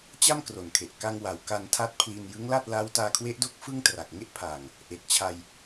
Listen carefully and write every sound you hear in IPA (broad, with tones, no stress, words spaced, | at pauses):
t͡ɕa˥˩mkro˨˩nkʰe˨˩ʔ ka˧ŋ wa˩˦wka˧ntʰa˦˥t̚ pʰli˧njɯ˦˥ŋ la˥˩t̚ la˦˥wtaː˧kʰwe˦˥ʔdo˥˩k̚ fɯ˥˩ŋtra˨˩k̚ŋe˥˩ʔ pʰaː˨˩ŋ | ʔe˨˩k̚t͡ɕʰa˧j